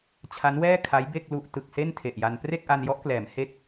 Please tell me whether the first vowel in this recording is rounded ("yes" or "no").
no